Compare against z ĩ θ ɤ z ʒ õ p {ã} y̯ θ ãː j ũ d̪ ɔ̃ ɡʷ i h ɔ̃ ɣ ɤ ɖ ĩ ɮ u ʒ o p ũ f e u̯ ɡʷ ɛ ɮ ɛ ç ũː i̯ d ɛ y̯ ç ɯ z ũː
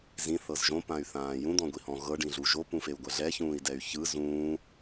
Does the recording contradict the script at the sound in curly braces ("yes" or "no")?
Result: no